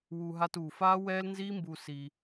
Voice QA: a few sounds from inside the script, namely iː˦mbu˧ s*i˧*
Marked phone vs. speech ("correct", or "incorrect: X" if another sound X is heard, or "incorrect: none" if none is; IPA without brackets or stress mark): correct